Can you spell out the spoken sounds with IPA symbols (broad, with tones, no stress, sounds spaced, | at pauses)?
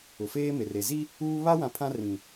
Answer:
ʊ˨ f eː˦ m e˨ r e˨ z i˦ | uː˦ β a˦ w ã˨ pʰ ã˦ r ĩ˨